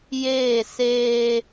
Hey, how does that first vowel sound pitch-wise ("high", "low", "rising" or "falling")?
falling